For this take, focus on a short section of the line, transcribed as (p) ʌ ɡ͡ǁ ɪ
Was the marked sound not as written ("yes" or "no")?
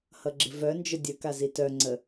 yes